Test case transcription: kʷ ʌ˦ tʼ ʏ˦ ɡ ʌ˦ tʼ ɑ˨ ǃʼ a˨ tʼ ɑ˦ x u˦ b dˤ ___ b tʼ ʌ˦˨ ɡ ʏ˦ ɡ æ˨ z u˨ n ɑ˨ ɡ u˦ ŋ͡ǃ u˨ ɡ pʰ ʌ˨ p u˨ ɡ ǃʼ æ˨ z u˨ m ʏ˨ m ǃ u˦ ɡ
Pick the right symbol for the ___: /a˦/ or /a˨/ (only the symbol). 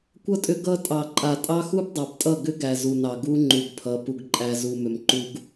a˨